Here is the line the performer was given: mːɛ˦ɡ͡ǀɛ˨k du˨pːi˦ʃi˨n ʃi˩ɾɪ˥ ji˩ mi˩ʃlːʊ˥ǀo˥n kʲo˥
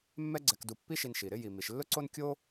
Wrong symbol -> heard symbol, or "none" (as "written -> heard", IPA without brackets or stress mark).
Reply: none